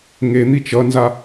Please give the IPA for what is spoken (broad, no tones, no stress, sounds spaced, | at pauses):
ŋ e n̪ i t͡ʃ ʌ n z a